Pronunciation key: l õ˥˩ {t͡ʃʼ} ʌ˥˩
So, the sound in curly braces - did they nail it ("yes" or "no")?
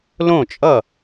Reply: yes